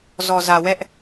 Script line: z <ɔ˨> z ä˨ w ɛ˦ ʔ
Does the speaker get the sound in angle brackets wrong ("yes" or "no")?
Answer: no